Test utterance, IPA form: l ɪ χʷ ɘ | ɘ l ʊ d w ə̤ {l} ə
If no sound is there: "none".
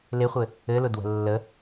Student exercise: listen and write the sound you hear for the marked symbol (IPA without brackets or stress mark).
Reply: lː